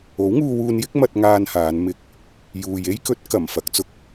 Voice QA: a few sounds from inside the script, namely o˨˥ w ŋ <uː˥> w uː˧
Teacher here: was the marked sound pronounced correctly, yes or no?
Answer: no